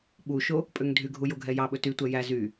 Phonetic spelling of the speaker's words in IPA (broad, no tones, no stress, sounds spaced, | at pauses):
ɓ u ʃ o | pʼ ø ŋ dʱ y ɡʱ u j o ɡʱ ɛ j ɑ ɓ ɵ t y tʷ ɛ j æ z y